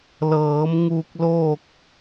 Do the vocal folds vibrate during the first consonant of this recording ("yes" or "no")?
yes